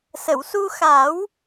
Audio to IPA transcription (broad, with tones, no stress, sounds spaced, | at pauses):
s ə˨˩˨ w s u˧ x a˨˩˦ w